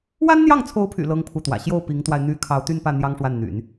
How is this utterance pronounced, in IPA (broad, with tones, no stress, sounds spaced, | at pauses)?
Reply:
w a˥ n n̪ j ɑ˥˩ ŋ t͡sʰ o˧˥ ʊ̯ pʰ y̰˨˩ l ɤ˥ ŋ pʰ u˥˩ t̪ w ä̰˨˩ ɕ j o˥˩ ʊ̯ p i˧˥ ŋ t̪ w a˧ ɪ̯ n̪ y˥˩ kʰ ɑ˧˥ ʊ̯ t̪ y˥˧ n p ä˥˩ n̪ j ɑ˥ ŋ ʂ w a˥˩ n n̪ y̰˨˩˦ n